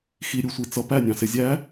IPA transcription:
x i ɾʲ u sʷ i t͡s ʌ p æ nʲ ɑ̃ s ɪ zʲ æ

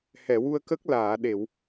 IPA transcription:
h ɛ˨˩˨ w u˧ ə̯ k ə˦˥ k̚ l aː˨˩˨ ɗ e˨˩˨ w

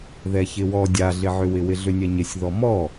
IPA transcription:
ð ɛ ç ɪ w ɔ dʲ a ɮ ɪ ʕ ʏ w ɪ w ɪ ɮ ʏ nʲ ɛ ɲ ɪ sʲ ð ɔ m ɔ

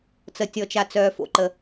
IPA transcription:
t͡s ə˩ tʲ ɔ˩ t͡ʃ a˩ t͡s œː˩ f o̰˩ ǃ ə˩

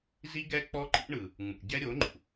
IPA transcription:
z i˦ ɡ ɛ˦ k͡p ɔ˦ ǃ ḭ˦ ɳ ɯ˨ | ŋ͡m ṵ˨ ɟ ɛ˦ ɾʲ o˨˦ ŋ͡ǃ ṵ˨

